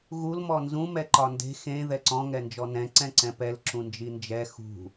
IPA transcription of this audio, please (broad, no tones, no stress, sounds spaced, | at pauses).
ɣ u l m ɔ n z ũ m ɛ ǃ ɒ n d e̤ x ẽ ð ɛ ǀ ɔ̃ ŋ ɛ n d͡ʒ ɔ n ɛ̃ ǀ ɛ̃ ǀ ɛ̃ p ɛ l ǁ ũ n d͡ʒ i n d͡ʒ ɛ x ṳ